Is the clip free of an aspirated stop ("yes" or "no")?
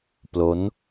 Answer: yes